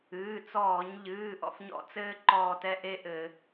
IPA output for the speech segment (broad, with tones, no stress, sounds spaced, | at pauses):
ɨː˩˧˩ t͡s ɔː˧˩˧ ɲ ʎ ɨː˩˧˩ ʔ ɔ̰˥ f ɲ ɔ̰˦˨ t͡s ɘː˥ ǃ ɔː˦˨ t ɛ˥ ʔ e˥ ʔ ɘ˧˩˧